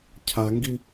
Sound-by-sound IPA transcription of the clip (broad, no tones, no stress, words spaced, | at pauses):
cʰaŋɡi